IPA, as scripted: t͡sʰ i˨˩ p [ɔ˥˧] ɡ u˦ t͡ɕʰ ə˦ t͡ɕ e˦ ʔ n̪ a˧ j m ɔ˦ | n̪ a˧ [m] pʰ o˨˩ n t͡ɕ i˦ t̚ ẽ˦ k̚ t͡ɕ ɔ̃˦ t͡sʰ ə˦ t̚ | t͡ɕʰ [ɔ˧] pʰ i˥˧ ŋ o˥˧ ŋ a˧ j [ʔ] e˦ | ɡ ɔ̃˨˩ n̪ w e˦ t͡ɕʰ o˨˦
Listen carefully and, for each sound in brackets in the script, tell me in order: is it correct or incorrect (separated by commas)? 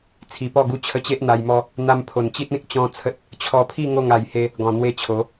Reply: correct, correct, correct, incorrect